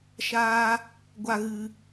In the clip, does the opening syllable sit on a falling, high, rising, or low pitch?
high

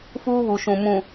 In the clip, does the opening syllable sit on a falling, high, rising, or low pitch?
high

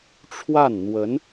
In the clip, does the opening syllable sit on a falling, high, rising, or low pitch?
falling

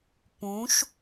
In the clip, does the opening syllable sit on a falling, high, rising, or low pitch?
rising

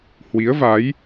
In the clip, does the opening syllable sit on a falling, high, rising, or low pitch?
rising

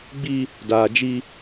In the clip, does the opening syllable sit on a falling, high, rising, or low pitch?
high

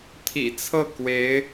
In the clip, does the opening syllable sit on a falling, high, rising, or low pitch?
low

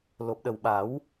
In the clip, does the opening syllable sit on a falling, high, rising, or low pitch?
low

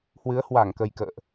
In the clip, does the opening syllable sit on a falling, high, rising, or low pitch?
rising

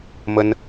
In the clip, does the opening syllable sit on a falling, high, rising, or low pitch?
high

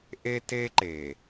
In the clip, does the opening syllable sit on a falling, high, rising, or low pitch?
high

